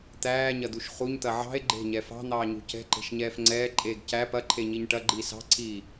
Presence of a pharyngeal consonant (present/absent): present